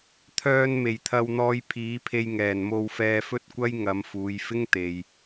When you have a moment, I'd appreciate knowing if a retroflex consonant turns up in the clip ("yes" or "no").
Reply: no